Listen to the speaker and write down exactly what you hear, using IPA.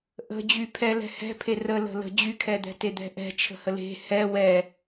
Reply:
ʔə̤d͡ʑy pʰɛlɛ̤hɛ̤pʰe rələ̤ lə̤ d͡ʑykʰɛd̪ɛ̤ ted̪ɛ̤ʔɛ̤ t͡ʃʰə̤həle̤ hɛ wɛ

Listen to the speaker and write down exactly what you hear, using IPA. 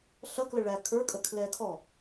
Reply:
ɬʌklə ɭæ kʰə˞kʼə kʰlɛ kʰɔ

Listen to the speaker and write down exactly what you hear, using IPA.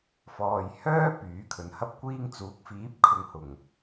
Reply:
fɔː˨jhœː˥ pyː˨˥kʰɵ˨˥nhɐ˥p̚kʷiː˥ŋ t͡suː˨˥k̚fiː˨˥p̚kʰʊ˨ŋ hʊ˨˩ŋ

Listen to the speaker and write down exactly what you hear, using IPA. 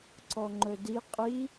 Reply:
ǀɔŋ͡ǃɵdi qʼi

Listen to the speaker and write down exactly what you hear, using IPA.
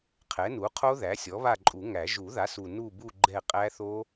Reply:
qʰɛ˩˥nu˩˥qʰo˦˥ ðæ˩˥sʲɔ˩˥βa˦˨ ǃʼu˨˩˦ŋæ˨˩˦ ʒu˨˩˦ða˩˥su˨˩ nu˦˨bu˦˨ ɡ͡ǃɛ˦˨qʼæ˦˥θo˦˥

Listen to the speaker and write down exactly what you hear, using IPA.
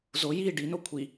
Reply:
zo ji ɖino kʷʰi

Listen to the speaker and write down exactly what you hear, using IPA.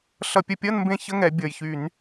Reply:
ɬʌ˧˩˧pʲə˨˦pʲʌ˧˥˧nmbẽ˦˨ çə˧˥˧ ŋɛ˨˦bʲʌ˨˩jçy˧˩˧n

